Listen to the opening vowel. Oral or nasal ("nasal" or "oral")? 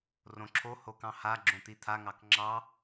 nasal